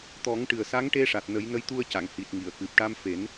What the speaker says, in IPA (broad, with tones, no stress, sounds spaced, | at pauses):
t̪ ɔ˨˩˦ ŋ ʈ ɨ˨˩ ə̯ s a˧˥ ŋ ʈ e˧ ʂ a˨˩ t̚ n ə˨˩˦ j n ə˧˥ j t̪ u˧ ə̯ c a˨˩˨ ŋ h i˨˩ t̚ ŋ i˨˩˨ ə̯ k ɨ˨˩ p̚ ʈ a˧ m f e˨˩˦ n